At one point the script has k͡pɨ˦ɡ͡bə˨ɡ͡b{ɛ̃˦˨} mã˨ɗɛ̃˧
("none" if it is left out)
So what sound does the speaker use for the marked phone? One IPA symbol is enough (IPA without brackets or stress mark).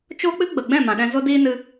ɛ̃˦˨